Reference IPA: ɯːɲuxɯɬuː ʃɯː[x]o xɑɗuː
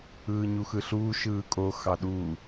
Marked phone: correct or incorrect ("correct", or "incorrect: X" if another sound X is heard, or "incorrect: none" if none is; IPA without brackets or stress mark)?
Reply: incorrect: kʼ